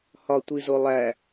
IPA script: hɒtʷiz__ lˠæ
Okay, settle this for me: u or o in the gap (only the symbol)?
o